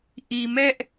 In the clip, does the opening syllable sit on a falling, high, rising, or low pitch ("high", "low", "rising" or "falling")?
low